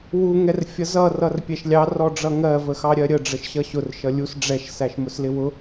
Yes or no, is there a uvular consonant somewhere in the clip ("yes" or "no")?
no